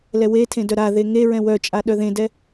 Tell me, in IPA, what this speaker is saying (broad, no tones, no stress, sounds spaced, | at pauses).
l ɛ w e tʰ ẽ d œ ɾ a ð e ŋ e ɹ ɛ̃ w œ t͡ʃʼ a ɗ œ ð ẽ d ɛ